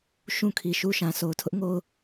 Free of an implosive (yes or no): yes